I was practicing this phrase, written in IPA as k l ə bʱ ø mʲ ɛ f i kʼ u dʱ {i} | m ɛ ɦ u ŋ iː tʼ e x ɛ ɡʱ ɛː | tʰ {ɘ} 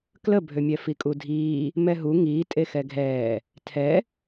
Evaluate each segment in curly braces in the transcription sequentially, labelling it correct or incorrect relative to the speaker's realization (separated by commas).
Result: incorrect, incorrect